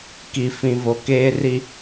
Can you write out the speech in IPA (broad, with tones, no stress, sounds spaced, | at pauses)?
k i˨ f ĩ˨ v o˨ k eː˦ r i˦